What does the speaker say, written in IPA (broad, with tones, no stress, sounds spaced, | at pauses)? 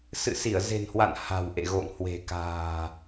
s ɨ̰˧˨ s i˧˩ ə̯ z e̤˨˩ n h w a̰˧˨ n h a̤˨˩ w ʔ ḛ˧˨ ɣ o̰˧˨ ŋ h w e̤˨˩ k a̤ː˨˩